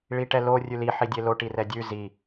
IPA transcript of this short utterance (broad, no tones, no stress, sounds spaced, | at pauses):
ɭ i ʈ ɛ l o rʲ ʉ l i ħ i dʲ e l o ʈ i r ɛ dʲ ʉ z i